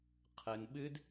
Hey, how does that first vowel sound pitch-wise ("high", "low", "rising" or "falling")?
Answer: high